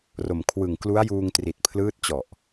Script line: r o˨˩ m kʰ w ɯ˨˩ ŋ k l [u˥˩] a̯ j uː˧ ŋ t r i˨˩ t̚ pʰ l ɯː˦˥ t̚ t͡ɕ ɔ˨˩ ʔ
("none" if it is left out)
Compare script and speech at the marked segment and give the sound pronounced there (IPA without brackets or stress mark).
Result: u˦˥